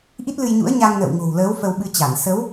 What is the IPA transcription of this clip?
ʔ i˦˥ t̚ l ɨ˧ j ɲ ṵ˧˥ ə̯ ɲ a˧ ŋ n ə̰ː˧˨ w ŋ o̤˨˩ w l əː˨˦ w f ə˧ w ɓ ɨ˧ t͡ɕ a˧˩ n s ə˨˦ w

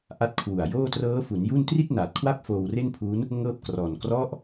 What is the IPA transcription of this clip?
ʔ a˦˥ t̚ kʰ w u˨˩ a̯ j oː˥˩ t r ɤː˦˥ f u˩˦ n j u˥˩ n t r i˥˩ t̚ n aː˨˩ t̚ kʰ w a˥˩ p̚ f oː˧ w r e˥˩ n pʰ u˦˥ n | ŋ ɤː˥˩ p̚ k r ɔː˨˩ n k r ɔ˦˥ ʔ

